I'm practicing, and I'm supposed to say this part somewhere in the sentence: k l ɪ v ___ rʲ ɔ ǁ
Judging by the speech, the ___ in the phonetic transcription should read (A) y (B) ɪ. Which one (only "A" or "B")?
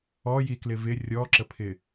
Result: B